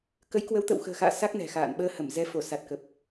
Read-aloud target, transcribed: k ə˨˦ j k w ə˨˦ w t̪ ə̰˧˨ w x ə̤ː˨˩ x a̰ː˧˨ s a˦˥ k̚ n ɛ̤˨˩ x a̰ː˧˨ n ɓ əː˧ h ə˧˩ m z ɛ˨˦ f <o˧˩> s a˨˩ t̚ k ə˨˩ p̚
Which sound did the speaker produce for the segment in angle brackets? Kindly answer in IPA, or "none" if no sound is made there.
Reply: o˧˩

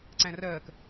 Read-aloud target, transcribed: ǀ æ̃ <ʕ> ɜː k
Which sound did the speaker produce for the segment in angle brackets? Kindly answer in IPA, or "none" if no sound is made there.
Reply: r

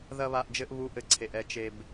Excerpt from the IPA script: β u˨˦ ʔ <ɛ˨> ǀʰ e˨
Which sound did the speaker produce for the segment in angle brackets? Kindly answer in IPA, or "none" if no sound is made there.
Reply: ɘ˨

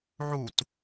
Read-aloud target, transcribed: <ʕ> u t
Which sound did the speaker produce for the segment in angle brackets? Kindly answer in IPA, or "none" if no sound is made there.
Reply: ʕ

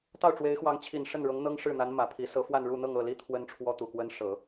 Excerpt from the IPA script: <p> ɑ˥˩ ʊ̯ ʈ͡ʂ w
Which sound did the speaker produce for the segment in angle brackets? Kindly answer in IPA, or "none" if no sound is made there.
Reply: t̪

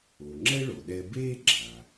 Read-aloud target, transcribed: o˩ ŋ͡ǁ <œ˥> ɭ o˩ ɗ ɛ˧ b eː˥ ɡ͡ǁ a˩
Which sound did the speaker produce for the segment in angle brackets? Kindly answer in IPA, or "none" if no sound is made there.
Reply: ɛ˥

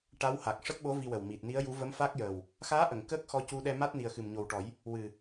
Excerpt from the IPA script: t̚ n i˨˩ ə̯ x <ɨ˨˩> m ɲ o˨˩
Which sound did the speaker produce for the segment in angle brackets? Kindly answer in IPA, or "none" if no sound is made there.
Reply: ɨ˨˩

